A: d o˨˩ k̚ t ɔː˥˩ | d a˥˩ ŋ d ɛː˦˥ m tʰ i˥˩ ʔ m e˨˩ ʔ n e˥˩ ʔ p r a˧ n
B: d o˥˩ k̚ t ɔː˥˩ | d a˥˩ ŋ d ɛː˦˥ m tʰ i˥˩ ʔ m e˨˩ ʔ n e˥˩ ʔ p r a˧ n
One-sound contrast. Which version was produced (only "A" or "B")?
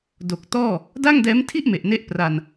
A